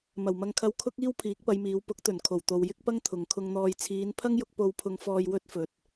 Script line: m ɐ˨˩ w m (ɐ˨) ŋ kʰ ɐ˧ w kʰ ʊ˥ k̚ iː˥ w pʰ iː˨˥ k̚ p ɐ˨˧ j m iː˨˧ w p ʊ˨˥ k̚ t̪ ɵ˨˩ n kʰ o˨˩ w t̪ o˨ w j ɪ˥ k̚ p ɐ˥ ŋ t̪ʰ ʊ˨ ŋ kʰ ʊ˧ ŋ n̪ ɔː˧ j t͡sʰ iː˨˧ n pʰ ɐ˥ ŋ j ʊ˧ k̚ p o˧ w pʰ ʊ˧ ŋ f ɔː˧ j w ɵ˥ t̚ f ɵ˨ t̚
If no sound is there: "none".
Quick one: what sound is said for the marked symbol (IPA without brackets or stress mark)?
ɐ˧